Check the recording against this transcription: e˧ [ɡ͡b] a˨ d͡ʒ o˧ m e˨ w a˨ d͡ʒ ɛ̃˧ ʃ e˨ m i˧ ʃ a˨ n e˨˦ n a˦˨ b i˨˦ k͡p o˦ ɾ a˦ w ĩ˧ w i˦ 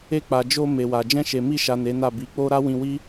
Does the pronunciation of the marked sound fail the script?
yes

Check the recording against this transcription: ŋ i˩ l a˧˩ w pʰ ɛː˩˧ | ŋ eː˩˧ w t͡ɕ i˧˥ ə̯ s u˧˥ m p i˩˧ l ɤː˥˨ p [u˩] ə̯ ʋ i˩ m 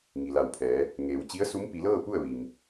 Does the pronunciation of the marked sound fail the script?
yes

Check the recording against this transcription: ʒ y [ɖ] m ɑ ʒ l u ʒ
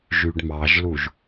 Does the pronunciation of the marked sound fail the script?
no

